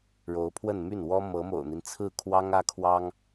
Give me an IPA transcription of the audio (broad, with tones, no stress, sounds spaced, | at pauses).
ɻ o˧˥ ʊ̯ pʰ w ə˥˧ n m y˥˩ n w ɔ˥ m ɤ˧˥ m o̰˨˩ ʊ̯ n̪ i˦ n t͡sʰ ɹ̩˥˩ kʰ w ɑ˥ ŋ ä˥ kʰ w ɑ˥ ŋ